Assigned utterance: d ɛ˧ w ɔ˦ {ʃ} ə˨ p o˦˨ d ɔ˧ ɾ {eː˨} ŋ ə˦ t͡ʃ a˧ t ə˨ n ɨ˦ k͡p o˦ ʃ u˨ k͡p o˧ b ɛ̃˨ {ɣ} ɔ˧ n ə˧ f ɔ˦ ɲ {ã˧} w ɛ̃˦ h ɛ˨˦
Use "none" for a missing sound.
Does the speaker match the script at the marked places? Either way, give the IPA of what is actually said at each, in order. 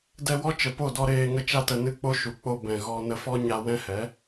t͡ʃ, eː˧, ɣ, a˧

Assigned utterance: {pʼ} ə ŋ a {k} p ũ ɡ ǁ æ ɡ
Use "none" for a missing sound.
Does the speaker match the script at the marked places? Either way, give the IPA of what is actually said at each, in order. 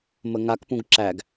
m, k

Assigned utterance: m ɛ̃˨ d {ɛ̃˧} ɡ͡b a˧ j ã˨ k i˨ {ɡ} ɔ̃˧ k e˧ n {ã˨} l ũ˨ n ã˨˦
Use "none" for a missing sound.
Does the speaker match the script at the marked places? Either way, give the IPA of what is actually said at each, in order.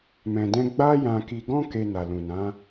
ɛ̃˧, ɡ, a˨

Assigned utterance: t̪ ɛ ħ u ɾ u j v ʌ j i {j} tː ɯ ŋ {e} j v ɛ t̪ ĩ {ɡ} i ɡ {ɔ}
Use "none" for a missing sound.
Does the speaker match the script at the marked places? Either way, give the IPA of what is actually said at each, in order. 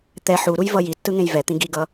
none, ẽ, ɡ, ʌ

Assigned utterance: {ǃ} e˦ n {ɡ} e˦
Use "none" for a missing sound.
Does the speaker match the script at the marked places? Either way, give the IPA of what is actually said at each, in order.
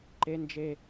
ǃ, d͡ʒ

